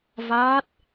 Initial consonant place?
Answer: labial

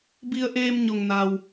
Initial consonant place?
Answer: labial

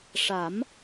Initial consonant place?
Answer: retroflex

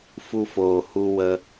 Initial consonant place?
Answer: labial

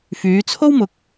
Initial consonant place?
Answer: labial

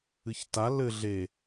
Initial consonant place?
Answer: palatal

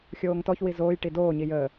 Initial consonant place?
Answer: velar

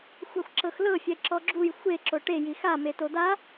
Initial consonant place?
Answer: velar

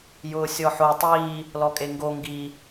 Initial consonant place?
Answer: palatal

